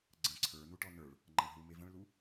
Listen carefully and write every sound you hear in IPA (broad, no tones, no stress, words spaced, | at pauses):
ɡ͡ǀə̃ ǀʰə˞ nuʈɔnə˞ɭ | ŋ͡ǃɐ̃ɳɦu mevə̃ɭlu